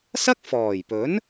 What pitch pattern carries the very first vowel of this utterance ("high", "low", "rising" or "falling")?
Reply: high